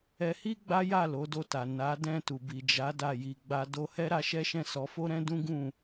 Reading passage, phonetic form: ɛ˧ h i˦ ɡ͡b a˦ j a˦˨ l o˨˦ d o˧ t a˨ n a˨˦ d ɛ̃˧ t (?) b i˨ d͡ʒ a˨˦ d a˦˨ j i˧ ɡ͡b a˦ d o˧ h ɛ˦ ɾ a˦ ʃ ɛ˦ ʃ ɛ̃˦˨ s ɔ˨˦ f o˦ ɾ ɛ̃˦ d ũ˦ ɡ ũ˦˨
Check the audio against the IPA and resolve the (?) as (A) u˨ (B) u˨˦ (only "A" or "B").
A